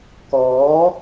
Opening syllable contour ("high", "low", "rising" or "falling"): rising